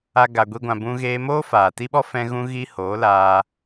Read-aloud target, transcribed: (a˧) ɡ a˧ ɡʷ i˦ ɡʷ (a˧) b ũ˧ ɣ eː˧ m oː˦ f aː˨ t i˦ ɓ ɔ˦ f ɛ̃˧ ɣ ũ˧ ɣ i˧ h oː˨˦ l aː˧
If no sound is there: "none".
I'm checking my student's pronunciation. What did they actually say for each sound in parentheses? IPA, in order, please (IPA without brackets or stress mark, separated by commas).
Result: a˧, ã˧